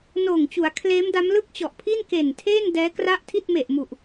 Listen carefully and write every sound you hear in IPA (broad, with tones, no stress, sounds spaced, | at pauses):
n oː˨˩ ŋ t͡ɕ u˩˦ a̯ kʰ l eː˦˥ m d a˦˥ m l ɯ˥˩ k̚ t͡ɕ ɔ˨˩ ʔ pʰ i˥˩ n k e˨˩ n tʰ eː˥˩ n d ɛː˦˥ k r a˥˩ ʔ tʰ i˥˩ t̚ m e˨˩ ʔ m u˨˩ ʔ